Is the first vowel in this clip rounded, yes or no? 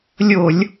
yes